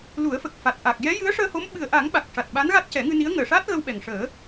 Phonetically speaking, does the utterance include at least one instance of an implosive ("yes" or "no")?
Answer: yes